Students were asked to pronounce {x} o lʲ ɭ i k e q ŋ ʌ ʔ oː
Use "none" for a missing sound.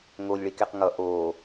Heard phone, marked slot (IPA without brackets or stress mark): ŋ